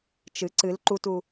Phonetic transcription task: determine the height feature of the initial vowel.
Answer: high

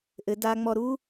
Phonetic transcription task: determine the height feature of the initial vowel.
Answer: mid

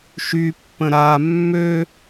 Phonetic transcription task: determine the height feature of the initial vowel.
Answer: high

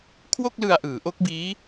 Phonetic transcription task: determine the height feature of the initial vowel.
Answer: mid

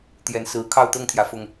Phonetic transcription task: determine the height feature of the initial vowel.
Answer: mid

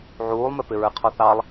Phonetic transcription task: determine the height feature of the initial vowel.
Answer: high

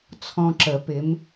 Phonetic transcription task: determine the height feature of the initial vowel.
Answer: mid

